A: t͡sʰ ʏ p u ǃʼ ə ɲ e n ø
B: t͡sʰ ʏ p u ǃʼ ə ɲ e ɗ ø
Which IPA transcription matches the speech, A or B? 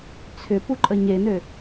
A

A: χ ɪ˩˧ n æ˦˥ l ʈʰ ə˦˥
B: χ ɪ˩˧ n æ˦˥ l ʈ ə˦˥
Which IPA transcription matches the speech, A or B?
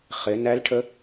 A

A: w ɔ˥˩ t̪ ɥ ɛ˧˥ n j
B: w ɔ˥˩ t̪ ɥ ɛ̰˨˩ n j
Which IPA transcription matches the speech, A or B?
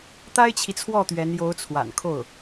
A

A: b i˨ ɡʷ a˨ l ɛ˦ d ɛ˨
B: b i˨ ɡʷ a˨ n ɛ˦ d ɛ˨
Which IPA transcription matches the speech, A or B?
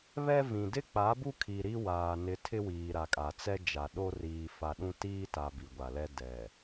A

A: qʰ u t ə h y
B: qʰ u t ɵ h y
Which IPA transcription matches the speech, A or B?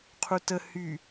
A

